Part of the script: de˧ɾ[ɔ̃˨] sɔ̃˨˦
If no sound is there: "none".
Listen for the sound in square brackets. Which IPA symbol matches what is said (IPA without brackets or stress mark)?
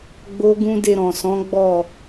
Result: ɔ̃˨